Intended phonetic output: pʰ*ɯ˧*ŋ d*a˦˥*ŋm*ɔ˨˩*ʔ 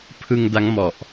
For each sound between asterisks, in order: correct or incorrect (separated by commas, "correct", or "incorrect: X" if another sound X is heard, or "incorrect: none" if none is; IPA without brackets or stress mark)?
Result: correct, correct, correct